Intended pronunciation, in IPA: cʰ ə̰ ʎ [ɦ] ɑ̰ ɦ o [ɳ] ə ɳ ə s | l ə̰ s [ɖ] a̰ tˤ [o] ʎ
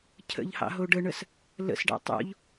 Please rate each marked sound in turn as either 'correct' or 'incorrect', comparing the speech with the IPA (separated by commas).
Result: incorrect, incorrect, correct, incorrect